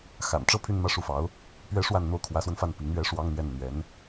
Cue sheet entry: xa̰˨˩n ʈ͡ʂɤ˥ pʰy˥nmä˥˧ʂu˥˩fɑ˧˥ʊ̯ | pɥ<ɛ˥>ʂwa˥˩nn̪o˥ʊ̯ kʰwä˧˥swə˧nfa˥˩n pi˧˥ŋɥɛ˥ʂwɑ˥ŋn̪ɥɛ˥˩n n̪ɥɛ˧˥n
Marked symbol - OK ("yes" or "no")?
yes